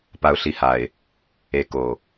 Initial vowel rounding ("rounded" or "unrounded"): unrounded